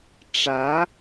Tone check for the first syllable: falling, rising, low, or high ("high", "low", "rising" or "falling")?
rising